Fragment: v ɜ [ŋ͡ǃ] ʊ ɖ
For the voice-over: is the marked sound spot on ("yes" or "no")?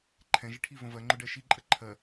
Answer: yes